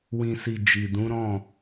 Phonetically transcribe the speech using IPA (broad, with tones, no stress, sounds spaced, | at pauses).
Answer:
w ĩ˨ s i˨ d͡ʒ i˨ d ũ˨˦ ɾ ɔ̃˦˨